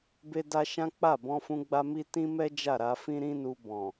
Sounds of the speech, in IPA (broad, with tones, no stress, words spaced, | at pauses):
be˦da˦ ʃã˦k͡pa˦˨ bɔ̃˧fũ˧ɡ͡ba˧ mi˦ tĩ˦mɛ˦ d͡ʒa˦˨ɾa˧fĩ˦ ɾĩ˦nu˧bɔ̃˨